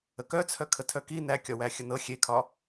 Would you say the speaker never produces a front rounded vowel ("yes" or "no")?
no